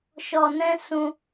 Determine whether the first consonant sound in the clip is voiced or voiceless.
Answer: voiceless